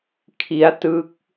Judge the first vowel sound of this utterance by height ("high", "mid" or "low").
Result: high